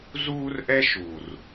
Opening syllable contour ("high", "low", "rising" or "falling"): high